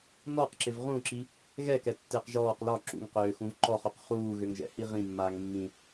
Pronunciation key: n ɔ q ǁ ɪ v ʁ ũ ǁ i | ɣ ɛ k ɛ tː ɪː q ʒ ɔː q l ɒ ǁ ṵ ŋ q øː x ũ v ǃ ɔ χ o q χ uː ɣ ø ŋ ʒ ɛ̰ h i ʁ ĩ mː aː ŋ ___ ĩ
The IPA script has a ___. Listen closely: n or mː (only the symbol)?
mː